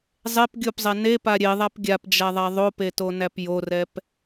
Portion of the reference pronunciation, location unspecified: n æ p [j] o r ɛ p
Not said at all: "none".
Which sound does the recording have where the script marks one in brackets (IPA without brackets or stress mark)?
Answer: j